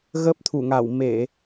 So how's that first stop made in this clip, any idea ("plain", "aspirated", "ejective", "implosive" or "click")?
plain